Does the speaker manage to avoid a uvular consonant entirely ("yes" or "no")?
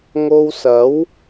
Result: yes